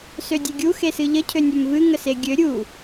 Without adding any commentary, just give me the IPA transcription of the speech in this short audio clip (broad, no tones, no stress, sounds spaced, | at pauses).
s ø dʲ e ɡʲ u x e s ɨ ʎ ə cʰ ø nʲ ø m v ɨ ŋ ə s e ɡʲ ø ɾʲ u